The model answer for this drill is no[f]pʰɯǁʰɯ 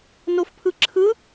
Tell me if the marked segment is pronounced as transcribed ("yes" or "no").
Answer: yes